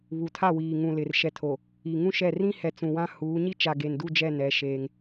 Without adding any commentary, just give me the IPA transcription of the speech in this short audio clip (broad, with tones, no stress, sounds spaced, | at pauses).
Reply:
β u˨ tʰ a˦˨ w iː˨ ŋ ũ˨ l ɪ˨ r ʃ ɛ˨ tʰ o˨ | i˨ ŋ ũ˦ ʃ ɛ˦˨ r ĩ˦ h ɛ˨ t͡s ũ˨ w ã˦ h uː˨˦ ɲ i˦ t͡ʃ a˨ ɡ e˨ n d u˦˨ d͡ʒ ɛ˦˨ n ɛ˦ ʃ eː˦ ŋ